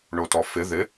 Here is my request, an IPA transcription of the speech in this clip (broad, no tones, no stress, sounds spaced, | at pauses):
ɳ o t ɔ f ɪ ð ɪ